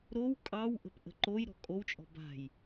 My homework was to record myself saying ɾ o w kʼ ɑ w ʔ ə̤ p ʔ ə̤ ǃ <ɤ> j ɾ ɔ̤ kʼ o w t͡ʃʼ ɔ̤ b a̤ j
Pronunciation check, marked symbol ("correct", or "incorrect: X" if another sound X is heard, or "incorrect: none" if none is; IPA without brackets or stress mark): incorrect: o